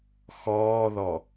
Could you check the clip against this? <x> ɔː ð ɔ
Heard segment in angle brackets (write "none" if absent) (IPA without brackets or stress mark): x